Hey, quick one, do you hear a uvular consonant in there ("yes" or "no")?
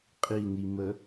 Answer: yes